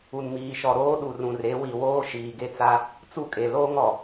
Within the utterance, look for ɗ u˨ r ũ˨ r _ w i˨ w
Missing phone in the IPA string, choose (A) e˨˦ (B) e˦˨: A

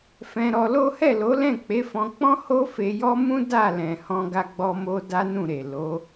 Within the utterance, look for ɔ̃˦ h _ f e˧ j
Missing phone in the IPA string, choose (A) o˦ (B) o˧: A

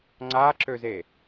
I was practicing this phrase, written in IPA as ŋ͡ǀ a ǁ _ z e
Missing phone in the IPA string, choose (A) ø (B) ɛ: A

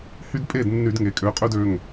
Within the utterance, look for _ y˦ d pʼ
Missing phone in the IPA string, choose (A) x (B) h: B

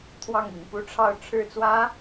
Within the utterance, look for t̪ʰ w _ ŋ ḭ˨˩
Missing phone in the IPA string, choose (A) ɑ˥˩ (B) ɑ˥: A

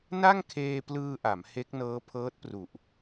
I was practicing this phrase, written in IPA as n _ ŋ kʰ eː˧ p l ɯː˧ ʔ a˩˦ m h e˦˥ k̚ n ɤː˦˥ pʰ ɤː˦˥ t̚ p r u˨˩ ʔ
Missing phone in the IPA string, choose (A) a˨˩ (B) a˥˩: B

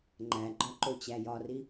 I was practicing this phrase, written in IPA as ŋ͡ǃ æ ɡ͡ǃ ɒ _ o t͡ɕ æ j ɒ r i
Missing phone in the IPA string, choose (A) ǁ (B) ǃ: B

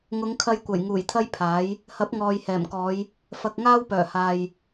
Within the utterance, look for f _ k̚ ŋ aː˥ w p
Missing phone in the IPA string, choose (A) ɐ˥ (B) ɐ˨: B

